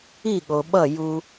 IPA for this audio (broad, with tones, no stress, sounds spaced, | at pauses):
i˦˨ ɠ o˨ ɓ ʌ˦˨ j u˦